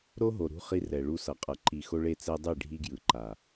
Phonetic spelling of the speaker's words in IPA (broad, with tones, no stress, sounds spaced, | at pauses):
ɾ o˦ ɦ o˨ ɾ ṳ˦ χ i˦ r ɛ˨ ɭ u˦ s ʌ˨ qʼ ʌ˨ ǃ i˨ x o˦ ɭ e˦˨ t͡s ɛ˦ dˤ i˦˨ ɖʱ i˦ ɡ j ɯ˨ ǃ a˨